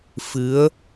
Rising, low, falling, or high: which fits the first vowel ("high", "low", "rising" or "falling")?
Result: rising